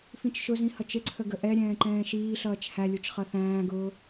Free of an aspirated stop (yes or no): no